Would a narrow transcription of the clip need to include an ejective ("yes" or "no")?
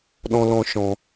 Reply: no